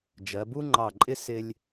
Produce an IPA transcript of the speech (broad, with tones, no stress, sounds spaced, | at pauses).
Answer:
d͡ʒ ɜ˩˧ b u˥ ŋ͡ǃ ɑ˧˩ ǃʼ ɪ˥ s ɪ˧ lʲ